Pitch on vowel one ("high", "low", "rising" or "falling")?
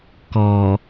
low